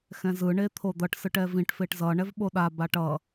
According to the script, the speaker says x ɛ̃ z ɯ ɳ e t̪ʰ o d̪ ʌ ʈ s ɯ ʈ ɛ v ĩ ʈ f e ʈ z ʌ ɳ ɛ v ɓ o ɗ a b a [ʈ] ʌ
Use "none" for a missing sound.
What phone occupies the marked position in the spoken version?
ʈ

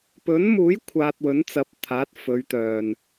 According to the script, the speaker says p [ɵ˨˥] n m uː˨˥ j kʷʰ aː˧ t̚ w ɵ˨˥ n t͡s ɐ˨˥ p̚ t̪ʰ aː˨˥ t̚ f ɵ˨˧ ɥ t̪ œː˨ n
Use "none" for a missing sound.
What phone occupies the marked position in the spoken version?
ɵ˨˥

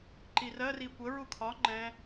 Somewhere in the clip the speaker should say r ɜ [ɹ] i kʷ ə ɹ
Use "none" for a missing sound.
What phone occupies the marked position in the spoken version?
r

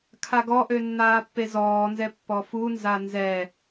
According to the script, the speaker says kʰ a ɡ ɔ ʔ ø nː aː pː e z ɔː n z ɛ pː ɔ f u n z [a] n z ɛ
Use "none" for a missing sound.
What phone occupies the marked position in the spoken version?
a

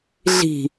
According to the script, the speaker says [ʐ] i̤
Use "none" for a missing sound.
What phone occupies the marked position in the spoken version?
ɮ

